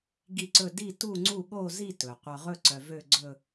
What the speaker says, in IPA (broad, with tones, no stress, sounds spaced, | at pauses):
ɡ i˦˨ ǀ ɵ˦˨ d i˦˨ t u˦˨ ŋ͡ǀ u˦˨ ɠ o˦˨ z i˦˨ t ɵ˩ qʷ œ˩ ʁ ɵ˦˨ ǀ œ˩ v ø˦˨ ɡ͡ǀ ɵ˦˨